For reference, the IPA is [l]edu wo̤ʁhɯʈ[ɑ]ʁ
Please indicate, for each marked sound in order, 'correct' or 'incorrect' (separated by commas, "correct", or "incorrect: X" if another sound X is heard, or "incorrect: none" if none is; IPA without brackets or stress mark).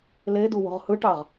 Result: correct, correct